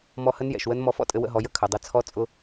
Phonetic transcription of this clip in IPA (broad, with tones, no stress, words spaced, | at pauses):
mɔ˧hə˧˥njɛ̰˩ʃwə˧˥n mɔ˧fɔ̰˥tʼɘ˧ wə̰˧ɦɔ˩˧ jə˧kʰœ˩dˤɘ˧ t͡sʰɔ˧˥t͡sʼʊ˧